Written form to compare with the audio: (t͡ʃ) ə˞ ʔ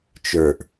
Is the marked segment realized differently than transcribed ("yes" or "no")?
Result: no